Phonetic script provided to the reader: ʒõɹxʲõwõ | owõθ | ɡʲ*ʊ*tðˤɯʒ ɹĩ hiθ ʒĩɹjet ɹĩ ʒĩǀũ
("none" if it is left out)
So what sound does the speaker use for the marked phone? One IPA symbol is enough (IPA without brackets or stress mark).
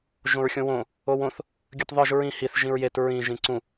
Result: ɯ